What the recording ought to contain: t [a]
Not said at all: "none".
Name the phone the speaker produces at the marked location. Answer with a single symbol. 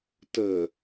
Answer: ə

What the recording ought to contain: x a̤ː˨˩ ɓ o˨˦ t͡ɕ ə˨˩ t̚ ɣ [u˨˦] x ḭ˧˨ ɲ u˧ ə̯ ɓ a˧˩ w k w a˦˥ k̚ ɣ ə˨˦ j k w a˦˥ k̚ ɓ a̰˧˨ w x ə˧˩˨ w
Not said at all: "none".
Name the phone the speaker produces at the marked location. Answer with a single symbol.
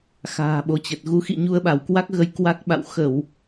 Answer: u˨˦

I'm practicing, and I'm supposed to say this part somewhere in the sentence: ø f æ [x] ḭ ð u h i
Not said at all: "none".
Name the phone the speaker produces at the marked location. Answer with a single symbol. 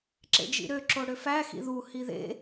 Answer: x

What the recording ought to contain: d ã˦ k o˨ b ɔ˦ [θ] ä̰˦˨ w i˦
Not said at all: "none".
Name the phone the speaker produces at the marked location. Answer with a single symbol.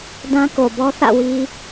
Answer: θ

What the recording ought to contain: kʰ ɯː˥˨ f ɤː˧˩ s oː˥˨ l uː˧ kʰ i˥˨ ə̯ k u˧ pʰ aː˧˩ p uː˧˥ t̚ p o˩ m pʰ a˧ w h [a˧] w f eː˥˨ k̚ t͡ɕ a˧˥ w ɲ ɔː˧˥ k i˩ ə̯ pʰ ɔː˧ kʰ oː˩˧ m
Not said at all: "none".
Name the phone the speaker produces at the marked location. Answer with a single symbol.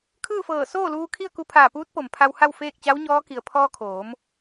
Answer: a˥˨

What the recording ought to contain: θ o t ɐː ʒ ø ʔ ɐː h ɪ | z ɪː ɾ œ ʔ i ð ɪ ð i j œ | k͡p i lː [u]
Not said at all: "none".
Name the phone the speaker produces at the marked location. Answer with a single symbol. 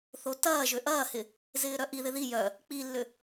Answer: ʏ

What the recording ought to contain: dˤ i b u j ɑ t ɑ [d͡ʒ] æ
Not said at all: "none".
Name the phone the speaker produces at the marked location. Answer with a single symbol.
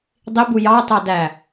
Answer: d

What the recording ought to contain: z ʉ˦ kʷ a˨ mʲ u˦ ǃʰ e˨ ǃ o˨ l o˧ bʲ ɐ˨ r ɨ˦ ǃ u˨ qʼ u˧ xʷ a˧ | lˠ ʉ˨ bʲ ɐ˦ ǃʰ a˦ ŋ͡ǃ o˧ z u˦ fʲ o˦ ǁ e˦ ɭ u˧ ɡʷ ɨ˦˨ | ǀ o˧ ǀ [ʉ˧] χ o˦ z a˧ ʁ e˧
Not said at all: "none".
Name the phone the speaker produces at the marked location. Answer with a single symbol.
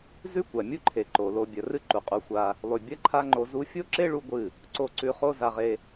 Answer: ʉ˧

